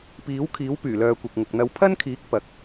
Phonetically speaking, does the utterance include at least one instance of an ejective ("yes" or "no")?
no